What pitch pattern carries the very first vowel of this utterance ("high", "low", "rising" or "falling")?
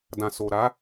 low